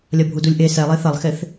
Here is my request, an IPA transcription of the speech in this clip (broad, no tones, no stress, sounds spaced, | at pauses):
lʲ ɐ bʱ u d u lʲ ʔ e s ɛ lˠ e θ ɐ lˠ x e θ